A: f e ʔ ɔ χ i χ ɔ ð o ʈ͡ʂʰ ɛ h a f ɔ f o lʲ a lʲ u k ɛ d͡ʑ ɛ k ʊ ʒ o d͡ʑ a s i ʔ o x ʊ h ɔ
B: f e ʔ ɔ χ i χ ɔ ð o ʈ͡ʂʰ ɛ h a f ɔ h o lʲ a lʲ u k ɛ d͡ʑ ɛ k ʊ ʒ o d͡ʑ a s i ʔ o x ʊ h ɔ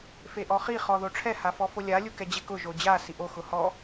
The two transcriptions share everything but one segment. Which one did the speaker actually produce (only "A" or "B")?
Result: A